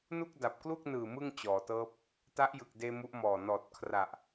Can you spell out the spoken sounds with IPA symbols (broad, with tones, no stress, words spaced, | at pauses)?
nu˥˩k̚da˨˩p̚klu˥˩k̚nɯː˨˩ mɯ˥˩ŋt͡ɕɔː˩˦tɤː˦˥p̚ | ta˦˥ʔjɯ˨˩k̚deː˧ mu˦˥ʔmɔː˨˩ nɔː˨˩t̚kʰra˨˩ʔ